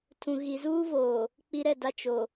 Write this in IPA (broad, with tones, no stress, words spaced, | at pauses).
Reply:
tʰũ˨ ɣi˨zuː˦voː˨ | k͡pi˦ɾɛ˦˨da˦ t͡ʃo˨